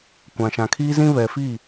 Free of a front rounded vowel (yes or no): yes